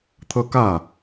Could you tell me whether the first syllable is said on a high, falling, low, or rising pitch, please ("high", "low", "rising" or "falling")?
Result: high